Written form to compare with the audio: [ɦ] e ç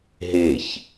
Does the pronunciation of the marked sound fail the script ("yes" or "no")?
no